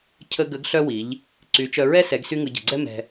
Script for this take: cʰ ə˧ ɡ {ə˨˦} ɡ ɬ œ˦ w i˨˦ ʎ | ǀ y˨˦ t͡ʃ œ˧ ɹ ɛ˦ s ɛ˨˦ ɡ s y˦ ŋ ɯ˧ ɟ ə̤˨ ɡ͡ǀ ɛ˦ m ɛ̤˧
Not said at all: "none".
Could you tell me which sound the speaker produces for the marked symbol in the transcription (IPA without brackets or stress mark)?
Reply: ə˨˦